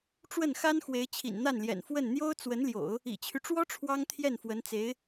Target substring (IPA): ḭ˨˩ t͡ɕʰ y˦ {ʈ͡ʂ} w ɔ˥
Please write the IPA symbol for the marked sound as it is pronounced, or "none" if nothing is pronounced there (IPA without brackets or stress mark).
ʈ͡ʂ